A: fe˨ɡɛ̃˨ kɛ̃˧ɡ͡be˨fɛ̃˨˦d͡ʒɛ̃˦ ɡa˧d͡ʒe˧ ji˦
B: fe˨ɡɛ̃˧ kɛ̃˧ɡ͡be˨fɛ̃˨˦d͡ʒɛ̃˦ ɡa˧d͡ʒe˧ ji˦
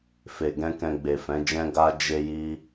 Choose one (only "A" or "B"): B